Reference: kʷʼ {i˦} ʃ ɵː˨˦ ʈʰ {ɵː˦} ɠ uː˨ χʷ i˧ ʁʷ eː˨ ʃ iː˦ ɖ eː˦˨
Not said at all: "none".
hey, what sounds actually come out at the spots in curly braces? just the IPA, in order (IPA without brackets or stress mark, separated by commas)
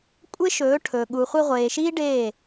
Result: e˦, ɵː˨